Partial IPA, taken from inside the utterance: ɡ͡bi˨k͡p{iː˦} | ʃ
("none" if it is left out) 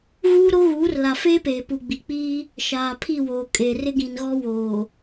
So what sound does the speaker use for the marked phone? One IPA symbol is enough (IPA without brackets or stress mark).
iː˦